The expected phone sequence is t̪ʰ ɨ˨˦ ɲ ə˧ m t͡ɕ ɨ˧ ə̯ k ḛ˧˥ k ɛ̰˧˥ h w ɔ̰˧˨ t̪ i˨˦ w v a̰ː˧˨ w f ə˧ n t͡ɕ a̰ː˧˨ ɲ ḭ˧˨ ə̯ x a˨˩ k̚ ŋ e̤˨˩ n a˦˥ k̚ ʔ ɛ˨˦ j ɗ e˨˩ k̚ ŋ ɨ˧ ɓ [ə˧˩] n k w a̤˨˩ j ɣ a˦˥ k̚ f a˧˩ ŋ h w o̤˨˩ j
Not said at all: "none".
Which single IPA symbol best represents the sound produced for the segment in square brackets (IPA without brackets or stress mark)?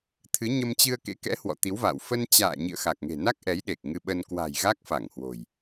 ə˧